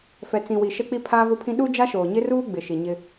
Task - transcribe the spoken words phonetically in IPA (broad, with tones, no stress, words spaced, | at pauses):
fɛ˨t͡sĩ˨wi˨ ʃɛ˦k͡pi˦ pʰaː˦vʊ˦pʰĩ˦ ɗu˦d͡ʒa˦ʃoː˨ ɲɪ˦ruː˦ ɡ͡bɪ˨ ʃi˨ɲɪ˦